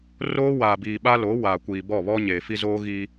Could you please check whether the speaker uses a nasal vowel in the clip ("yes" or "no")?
no